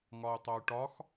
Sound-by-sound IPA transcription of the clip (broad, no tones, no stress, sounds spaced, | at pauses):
ŋ ɒ y̯ tˤ œ y̯ ʈ ɒ x